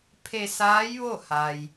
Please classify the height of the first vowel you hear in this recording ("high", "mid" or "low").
mid